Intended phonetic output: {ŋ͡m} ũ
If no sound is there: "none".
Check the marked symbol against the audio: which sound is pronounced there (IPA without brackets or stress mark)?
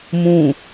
m